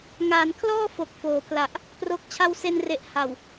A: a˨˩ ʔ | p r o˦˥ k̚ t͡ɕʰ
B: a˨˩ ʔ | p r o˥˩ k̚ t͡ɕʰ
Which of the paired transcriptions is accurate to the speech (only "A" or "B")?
A